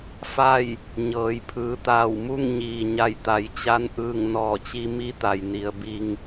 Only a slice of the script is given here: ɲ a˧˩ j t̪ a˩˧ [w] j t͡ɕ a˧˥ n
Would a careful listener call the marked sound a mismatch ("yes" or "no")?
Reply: yes